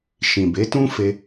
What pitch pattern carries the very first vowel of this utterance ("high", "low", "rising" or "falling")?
low